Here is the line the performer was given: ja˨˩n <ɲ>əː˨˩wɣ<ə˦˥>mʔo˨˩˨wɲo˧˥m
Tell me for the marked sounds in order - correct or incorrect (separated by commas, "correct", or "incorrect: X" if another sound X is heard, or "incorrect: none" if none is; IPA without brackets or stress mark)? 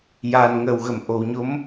incorrect: ŋ, incorrect: ə˨˩˨